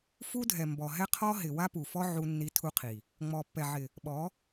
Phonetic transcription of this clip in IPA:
f u˦ dʱ ɛ˨ m b ɔ˨ ɦ ɛ˦ qʰ ɔ˦ ɦ ɪ˨ w a˦ p u˨ f ɔ˦ ʕ u˦ nː i˦ tʰ u˦ qʰ i˨ | ŋ͡m ɔ˨ pː ɛ˨ ʕ ɪ˨ | ɓ ɔ˨˦

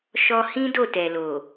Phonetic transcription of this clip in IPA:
ʃ ɔ˧ h ĩ˦ d o˦˨ t ɛ˨ l o˨

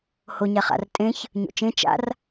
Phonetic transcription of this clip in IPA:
h o ɲ a χ a̰ r tʼ ẽ ç | ɲ o̰ t͡ʃ ẽ t͡ʃ a̰ r

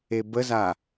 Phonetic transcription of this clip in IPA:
e b ə z a

